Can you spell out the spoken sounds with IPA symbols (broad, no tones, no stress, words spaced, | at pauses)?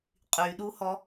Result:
qʼyɗuhɔ